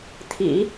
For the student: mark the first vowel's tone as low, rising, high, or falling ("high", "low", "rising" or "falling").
low